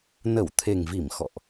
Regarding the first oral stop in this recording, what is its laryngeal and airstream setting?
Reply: aspirated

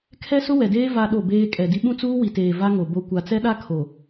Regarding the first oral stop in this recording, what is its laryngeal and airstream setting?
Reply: aspirated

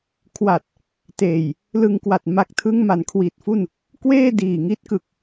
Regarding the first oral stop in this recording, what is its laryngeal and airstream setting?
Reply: aspirated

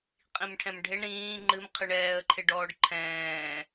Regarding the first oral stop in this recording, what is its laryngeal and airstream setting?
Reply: ejective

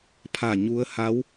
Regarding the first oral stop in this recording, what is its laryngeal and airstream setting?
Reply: aspirated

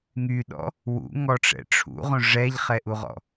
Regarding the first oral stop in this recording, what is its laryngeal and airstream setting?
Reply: implosive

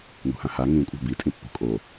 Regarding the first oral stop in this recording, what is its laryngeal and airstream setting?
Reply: ejective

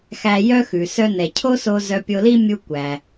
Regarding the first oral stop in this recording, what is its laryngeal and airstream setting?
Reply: aspirated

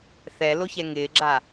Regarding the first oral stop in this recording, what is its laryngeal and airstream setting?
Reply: click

